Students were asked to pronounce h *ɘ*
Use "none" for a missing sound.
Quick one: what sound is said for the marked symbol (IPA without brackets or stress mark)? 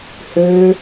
ø